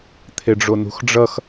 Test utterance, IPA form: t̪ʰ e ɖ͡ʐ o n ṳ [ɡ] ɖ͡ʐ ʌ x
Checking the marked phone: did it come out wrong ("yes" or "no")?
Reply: yes